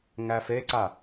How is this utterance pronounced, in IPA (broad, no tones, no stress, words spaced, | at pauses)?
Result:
ŋæfeǀa